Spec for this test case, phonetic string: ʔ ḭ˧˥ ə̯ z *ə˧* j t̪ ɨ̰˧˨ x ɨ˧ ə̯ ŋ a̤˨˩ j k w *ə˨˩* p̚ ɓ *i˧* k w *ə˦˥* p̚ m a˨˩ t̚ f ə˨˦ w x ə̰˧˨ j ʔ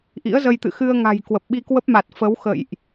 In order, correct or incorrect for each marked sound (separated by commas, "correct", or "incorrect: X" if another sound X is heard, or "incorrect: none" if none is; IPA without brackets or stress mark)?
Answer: correct, correct, correct, correct